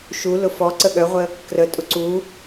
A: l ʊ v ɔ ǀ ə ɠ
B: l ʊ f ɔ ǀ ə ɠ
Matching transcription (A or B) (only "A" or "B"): B